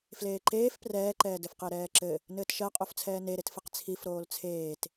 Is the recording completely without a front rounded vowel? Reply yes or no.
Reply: yes